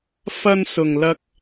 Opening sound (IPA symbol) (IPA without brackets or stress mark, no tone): f